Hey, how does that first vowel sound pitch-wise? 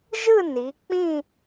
falling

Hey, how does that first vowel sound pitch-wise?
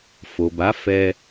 low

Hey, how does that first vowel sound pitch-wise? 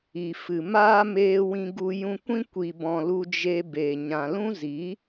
low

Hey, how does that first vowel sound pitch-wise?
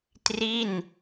falling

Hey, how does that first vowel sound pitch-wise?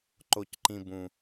low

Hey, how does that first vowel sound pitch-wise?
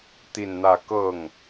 falling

